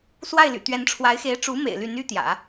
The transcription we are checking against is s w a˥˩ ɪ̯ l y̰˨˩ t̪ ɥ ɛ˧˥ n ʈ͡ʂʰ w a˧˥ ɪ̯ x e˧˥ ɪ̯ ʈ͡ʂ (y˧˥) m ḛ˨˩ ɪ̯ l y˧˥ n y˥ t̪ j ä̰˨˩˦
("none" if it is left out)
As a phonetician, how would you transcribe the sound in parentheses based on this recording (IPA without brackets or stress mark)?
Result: u˧˥